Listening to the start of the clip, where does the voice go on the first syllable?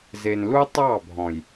low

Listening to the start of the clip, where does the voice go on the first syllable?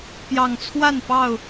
low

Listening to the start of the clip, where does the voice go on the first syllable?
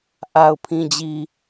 low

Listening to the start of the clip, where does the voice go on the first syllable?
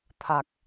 low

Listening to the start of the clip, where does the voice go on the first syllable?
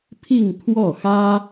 falling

